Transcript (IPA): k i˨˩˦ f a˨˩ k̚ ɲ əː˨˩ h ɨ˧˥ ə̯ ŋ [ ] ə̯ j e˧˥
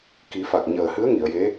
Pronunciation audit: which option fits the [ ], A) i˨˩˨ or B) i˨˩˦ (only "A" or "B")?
A